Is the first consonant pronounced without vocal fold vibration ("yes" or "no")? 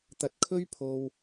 yes